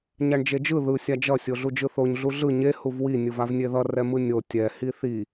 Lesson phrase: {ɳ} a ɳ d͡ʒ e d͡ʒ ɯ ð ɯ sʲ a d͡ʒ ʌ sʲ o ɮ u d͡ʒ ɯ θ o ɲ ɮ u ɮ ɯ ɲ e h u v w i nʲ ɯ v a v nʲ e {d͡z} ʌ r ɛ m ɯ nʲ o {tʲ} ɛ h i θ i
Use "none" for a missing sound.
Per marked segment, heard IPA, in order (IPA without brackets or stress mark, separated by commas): ɲ, ð, tʲ